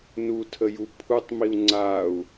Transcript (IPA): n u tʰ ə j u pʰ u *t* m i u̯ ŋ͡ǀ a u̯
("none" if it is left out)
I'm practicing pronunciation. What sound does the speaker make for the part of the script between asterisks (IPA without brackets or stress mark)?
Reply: tˤ